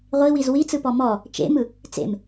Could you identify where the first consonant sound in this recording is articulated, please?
uvular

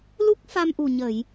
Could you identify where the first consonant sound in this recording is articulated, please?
alveolar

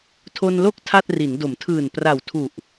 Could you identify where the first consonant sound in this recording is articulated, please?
alveolar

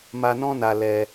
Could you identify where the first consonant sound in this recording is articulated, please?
labial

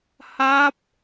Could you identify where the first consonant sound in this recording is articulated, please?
glottal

